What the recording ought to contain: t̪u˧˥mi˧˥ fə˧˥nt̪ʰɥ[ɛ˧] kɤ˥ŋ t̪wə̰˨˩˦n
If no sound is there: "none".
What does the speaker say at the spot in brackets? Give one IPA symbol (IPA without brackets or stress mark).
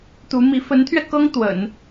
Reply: ɛ˧